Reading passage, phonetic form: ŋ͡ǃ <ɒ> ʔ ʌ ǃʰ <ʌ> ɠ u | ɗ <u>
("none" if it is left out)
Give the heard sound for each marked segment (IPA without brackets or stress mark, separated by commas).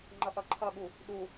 ʌ, ʌ, u